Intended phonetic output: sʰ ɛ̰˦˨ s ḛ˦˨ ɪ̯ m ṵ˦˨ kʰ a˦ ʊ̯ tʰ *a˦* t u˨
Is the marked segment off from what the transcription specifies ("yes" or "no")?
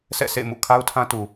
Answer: yes